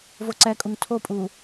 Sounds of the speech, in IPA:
voǀɛkʼuŋ tʰopʼu

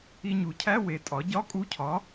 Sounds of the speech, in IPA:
i˧ɲu˩˥cʰæ˧˥˧ we˧tʼɒ˩˥ ɟɒ˧˥˧kʼu˧˥cʰɒ˩˥

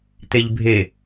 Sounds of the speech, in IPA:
t̪eʎbʱe

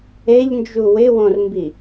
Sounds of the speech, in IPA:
eʎnd͡ʒu wɪwõrmbi

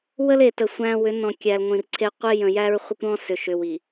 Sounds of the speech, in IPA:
wə˦le˨tə˨ sʷæ̃˦ wʏ˨˦ nɔ̃˨ kʲæ˨l ŋʷĩ˨rǀʰe˦ qʷe˦jə̃˨jæ˦ɹ χʷə˦kʷɾɔ̃˦ sʏ˨ʃʏ˨wi˨

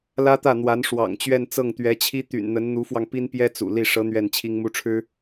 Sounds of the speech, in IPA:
lä˥t̪ä˥˩n̪wa˧˥n ʂwɑ̰˨˩ŋt͡ɕɥɛ˥˧nt͡sɤ˥˩ŋ t̪ɥɛ˧˥t͡ɕʰi˥t̪y̰˨˩n n̪ə˧˥nn̪u˧˥fwɑ˧ŋ pi˥npjɛ˥ t͡sṵ˨˩li˥˩ ʂɤ˧˥ n̪ɥɛ˥˩nt͡ɕʰi˥ŋmu˥ʈ͡ʂʰɻ̩˥

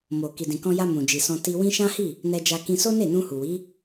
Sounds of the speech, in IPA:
mo˨ ki˨dĩ˨kɔ̃˧ja˧ mũ˨d͡ʒi˨sɔ̃˧ ti˧wĩ˦ ʃã˦hi˦˨ | nɛ˧d͡ʒa˧ kĩ˧so˦ne˦˨nũ˧ hu˨wi˨˦

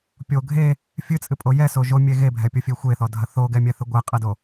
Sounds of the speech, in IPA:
pʲo ɡʱe | fʲɨt͡sʼɨpʼo jɛso ʒomʲe ɣebʱɛpʲofʲe xʷeθɔdʱɐ θoɡɛmʲɛθɨ ɡʷɛqʼɐdo

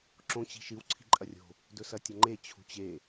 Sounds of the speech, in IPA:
ǁõ t͡ɕi̤ʃɨw ǀʰi̤ǃʼɐrʲo̤ | dɵsɐtʲɐŋ͡ǃe t͡ɕʰṳt͡ɕe

